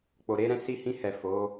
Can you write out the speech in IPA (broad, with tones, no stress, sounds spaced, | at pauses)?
k͡p o˨ ɾ e˧ ɾ ɛ̃˧ s i˧ h ĩ˧ h ɛ˨ f o˨˦